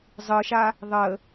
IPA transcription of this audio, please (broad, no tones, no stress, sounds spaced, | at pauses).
zˤ ɯ ʃ a | ðˤ ə